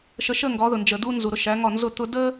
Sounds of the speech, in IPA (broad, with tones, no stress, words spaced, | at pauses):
ʃə˨ʃə˦˨ ŋɡɒ˨˦ðʊ˨ nd͡ʒə˨ du˦nzu˨ɾʊ˦ ʃæ˨˦ ŋɒ˦˨nzʊ˦˨ t̪ʊ˦ də˦